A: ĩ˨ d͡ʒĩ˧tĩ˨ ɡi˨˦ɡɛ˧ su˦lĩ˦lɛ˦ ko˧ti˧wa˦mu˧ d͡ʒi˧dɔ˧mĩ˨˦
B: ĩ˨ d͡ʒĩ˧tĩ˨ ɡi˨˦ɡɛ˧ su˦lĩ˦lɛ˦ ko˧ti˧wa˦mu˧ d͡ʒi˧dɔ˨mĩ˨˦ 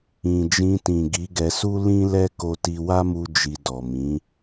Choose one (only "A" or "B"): B